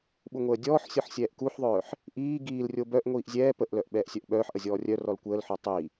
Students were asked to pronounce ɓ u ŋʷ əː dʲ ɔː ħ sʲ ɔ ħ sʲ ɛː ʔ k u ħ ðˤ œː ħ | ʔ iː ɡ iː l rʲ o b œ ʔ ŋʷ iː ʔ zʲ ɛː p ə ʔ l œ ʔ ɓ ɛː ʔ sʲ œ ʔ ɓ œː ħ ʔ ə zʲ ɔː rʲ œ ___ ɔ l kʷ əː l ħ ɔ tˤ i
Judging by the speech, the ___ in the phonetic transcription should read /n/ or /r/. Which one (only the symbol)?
r